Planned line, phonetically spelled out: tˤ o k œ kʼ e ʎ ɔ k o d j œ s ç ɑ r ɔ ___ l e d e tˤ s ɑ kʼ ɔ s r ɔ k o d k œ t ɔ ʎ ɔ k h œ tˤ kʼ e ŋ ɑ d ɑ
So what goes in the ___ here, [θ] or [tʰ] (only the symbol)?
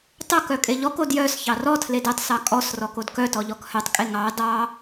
tʰ